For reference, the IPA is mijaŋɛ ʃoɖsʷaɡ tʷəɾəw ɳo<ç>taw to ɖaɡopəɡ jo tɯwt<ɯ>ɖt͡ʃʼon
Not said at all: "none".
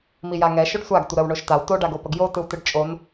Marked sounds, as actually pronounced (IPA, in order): ʃ, ɯ

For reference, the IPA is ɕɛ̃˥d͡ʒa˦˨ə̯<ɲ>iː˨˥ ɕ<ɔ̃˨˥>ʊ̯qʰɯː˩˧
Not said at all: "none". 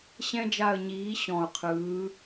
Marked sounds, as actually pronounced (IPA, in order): ɲ, ɔ̃˨˩

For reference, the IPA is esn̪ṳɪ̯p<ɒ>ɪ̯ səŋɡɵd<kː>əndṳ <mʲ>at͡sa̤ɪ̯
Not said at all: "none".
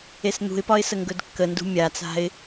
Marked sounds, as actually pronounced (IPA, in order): ɒ, kː, mʲ

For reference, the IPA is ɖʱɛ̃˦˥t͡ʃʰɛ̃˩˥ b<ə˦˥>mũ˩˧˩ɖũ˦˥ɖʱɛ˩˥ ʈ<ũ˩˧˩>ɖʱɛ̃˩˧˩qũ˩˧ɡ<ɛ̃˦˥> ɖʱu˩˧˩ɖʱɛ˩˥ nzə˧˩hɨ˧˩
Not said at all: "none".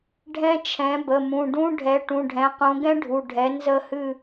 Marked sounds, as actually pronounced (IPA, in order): ə˩˧˩, ũ˩˧˩, ɛ̃˦˥

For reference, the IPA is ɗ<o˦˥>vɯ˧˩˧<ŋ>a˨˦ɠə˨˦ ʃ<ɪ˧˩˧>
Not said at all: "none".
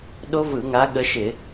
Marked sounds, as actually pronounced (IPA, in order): o˦˥, ŋ, ɪ˧˩˧

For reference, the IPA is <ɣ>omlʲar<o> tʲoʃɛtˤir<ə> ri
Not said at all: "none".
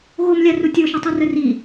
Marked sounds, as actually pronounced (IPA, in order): ɣ, u, ə

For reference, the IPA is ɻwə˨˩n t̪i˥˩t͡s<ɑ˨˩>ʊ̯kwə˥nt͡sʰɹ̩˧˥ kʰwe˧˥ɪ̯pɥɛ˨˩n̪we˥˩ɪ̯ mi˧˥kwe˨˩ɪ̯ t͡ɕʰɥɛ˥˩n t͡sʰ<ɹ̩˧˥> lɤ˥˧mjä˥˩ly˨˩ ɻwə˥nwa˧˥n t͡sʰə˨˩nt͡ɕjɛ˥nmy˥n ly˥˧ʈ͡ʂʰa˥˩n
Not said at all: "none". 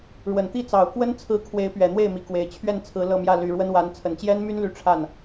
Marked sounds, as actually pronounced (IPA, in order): ɑ˨˩, ɹ̩˧˥

